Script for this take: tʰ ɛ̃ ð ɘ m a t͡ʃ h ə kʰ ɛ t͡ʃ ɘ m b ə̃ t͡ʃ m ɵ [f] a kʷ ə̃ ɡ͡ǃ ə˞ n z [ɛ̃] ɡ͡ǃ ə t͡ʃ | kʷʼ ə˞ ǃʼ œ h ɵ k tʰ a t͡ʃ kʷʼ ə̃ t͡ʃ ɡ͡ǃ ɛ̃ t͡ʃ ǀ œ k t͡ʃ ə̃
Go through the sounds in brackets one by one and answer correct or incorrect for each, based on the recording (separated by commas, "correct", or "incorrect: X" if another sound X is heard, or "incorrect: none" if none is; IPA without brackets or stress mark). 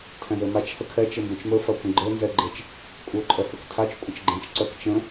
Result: correct, incorrect: ɛ